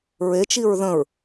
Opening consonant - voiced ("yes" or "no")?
yes